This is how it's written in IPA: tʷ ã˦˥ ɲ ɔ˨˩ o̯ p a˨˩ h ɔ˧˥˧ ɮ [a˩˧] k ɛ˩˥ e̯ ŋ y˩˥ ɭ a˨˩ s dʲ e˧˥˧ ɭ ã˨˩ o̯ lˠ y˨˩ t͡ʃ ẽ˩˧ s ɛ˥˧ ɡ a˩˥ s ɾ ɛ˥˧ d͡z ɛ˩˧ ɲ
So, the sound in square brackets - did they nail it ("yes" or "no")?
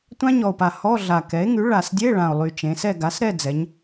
no